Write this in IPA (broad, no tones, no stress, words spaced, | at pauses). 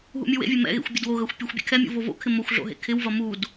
ɦṵmʲuwḛvʲe mɛ̰ɣḛxʷ bʲɐdwoɣɐxʷ pʲɛxʷ bʲɛ̰kʰɛmʲṵ vovo̰kʰɪ moxʷɮo̰ ɦḛkʰɪwvɐ mud